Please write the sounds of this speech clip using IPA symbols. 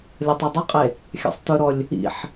lʲ ʌ tˤ e dˤ ə qʼ e | xʲ a̰ sˤ t ɵ ɾ ɔ lʲ | ḭ ħ

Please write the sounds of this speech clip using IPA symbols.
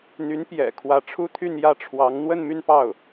n̪ y˧˥ n p j ɛ̰˨˩ kʰ w ä˧˥ ʈ͡ʂʰ u˥ t̪ʰ y˥˧ n j ä˥˩ ʈ͡ʂʰ w ɑ˧˥ ŋ n̪ w ə˥˧ n m y˥˧ n p ɑ˥˩ ʊ̯

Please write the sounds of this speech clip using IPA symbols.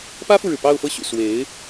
p ä˥ f u˨ ɻ ɻ̩˩ p ɑ˥˧ ʊ̯ f ɤ˥˩ ɕ y̰˨˩ s w e˧˥ ɪ̯

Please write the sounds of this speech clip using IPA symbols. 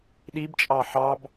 ɗ i b t͡ʃʼ ɑ ħ ɑ b

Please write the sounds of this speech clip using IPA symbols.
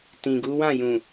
t ĩ˨ ɡ u˨˦ w ã˦˨ j ũ˨

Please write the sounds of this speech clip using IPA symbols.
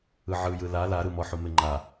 ɯ ʕ ɯ j ɯ l a l a ɾ ɯ m ɔ ħ u m e ŋ͡ǃ a

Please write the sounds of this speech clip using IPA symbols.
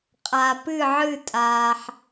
qʼ a˧ p ɨ˥˧ ʕ ɨ˥˧ tʼ aː˧ ħ

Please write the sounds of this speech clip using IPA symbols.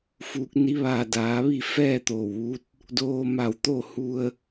f uː˧ k̚ n i˧˥ ʋ aː˧˩ d aː˩˧ ʋ i˥˨ f ɛː˥˨ t̪ oː˧˩ w ʋ u˧˥ t̚ | d oː˧ m a˧˩ w t̪ o˥˨ h u˧ ə̯

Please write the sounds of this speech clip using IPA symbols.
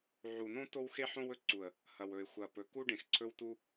ʕ u˨ n õ˦ t o˦ w x e˦ ħ õ˦ w ɵ˦ ǀ u˨ ə̯ | h ɐ˨ w ɵ˨ ɪ̯ xʷ ɐ˨ p ɵ˨ k u˦ ɖ ẽ˨ x ǀʰ ɵ˦ w t u˦

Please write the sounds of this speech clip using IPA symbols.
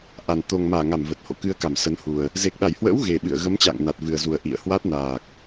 ʔ a˨˩ n t̪ o˨˩ ŋ m aː˧˩ ŋ a˧˩ m v ə˨˩ t̚ h o̰˧˨ k ɨ˧ ə̯ k a˧˩ m s ə˨˦ n h u˨˩ ə̯ | z e˨˩ k̚ ɗ a˧˩ j h w ə̰ː˧˥ w ɣ e˨˩ ɓ ɨ̰˧˨ ə̯ ɣ ə˨˦ m t͡ɕ a̰ː˧˨ ŋ n a˨˩ t̚ v ɨ˨˩ ə̯ z u˨˩ ə̯ ʔ ḭ˧˨ ə̯ h w a˦˥ t̚ n aː˨˩ k̚

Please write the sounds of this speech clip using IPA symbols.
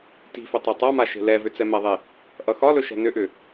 t i̤ f ʏ tˤ e tˤ a m a ʃ e̤ l ɛ v ʏ t͡s ɛ m ɛ ðˤ e | ʔ ʌ x ɒ l ɵ ʃ ɛ̤ n ʏ ʔ ʏ

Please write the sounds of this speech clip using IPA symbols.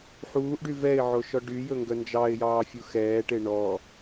ħ uː ʔ ɖ y v ɛ ɪ̯ ʕ o ʃ ɔ ɖ y j ɵ ŋ ɡ œ n d͡ʒ ɑ ɪ̯ j ɑː fʲ u x ɛː ʈ e ɳ ɔ

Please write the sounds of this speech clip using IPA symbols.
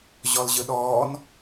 ʑ ɔ l ʑ ɯ ɗ ɔː n

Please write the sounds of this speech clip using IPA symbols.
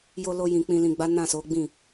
j o˧ l o˧ j ĩ˨ k͡p ĩ˨ l ĩ˨ ɡ͡b a˨˦ n ã˦˨ s o˨˦ ɡ͡b ĩ˦˨

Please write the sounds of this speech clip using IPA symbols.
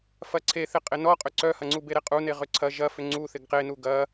f ɐ ǀʰ e θ ɪ qʼ ɪ n ɔ qʼ ʏ ǀ œ h ɐ ŋ͡ǀ u b e ɾ e qʼ u n e ʁ ʏ ǀʰ ɐ ʒ ɐ f ʏ ŋ͡ǀ u θ ɪ ɡ q e n u ɡ ɐ

